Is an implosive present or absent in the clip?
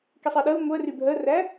present